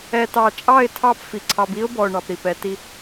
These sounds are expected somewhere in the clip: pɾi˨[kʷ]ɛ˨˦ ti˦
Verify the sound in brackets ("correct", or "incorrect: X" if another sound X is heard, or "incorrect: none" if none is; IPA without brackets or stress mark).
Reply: incorrect: p